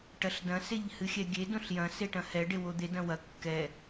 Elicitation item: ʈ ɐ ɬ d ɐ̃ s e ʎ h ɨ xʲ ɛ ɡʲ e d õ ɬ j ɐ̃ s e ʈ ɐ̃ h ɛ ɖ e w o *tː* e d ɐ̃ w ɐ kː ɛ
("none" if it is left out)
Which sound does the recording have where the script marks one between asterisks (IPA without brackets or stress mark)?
d̪